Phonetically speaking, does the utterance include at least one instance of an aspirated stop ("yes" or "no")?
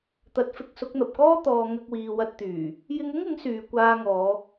no